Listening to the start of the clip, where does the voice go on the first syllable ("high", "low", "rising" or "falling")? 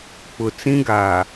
low